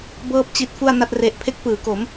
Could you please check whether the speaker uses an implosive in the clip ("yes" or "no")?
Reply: no